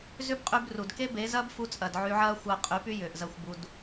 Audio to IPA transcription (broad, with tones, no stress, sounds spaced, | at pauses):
z ʏ˦ b qʼ y˧ b r u˨ d k e˦ b e˨˦ z ɐː˦ b f u˧ t͡sʼ ɐ˨ d ʕ y˧ ʕ ɐː˦ xʷ ɐː˧ qʼ y˨˦ p y˦ j ʏː˨ ʔ z ɐ˦˨ xʷ b u˧ d